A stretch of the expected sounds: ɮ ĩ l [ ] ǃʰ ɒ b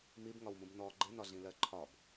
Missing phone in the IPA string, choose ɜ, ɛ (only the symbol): ɜ